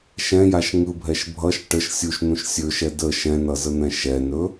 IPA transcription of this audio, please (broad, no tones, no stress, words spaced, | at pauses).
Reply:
ʃɛ̃jaʃ ŋɯbʱɛʃ bʱʌʃ ʈəʃ sʲuʃn̪ũʃ sʲɵʃɛ də ʃɛ̃nʌzən̪ɛ̃ ʃɛnɵ